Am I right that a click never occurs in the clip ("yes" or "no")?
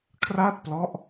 yes